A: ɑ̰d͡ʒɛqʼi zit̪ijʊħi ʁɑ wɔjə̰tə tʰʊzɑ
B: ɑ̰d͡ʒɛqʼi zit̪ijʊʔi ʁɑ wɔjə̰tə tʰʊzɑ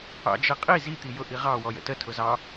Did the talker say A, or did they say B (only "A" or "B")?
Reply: B